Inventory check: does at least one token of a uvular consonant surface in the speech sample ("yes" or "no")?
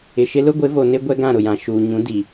no